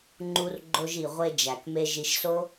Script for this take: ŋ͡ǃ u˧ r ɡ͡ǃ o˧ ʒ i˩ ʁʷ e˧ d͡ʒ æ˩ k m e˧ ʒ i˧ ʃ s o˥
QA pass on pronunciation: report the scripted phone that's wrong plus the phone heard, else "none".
none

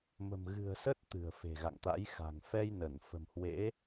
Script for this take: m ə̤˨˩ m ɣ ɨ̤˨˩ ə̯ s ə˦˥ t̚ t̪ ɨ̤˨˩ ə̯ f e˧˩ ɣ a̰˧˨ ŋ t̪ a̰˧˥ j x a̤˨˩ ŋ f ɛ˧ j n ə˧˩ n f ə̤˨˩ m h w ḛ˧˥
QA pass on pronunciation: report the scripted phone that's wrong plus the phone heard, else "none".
e˧˩ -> e̤˨˩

